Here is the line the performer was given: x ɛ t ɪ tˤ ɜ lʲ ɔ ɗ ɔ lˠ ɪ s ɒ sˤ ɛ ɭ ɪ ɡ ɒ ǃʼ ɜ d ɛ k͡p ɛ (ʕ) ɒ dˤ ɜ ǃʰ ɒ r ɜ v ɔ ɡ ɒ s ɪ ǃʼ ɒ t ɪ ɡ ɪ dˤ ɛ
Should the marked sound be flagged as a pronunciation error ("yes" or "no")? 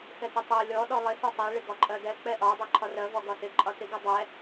yes